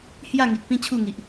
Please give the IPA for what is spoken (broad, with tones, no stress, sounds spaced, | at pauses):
h j a˥˧ ŋ i˨ k̚ p ĩ˦ t͡ɕʰ u˥˧ ŋ i˨ ʔ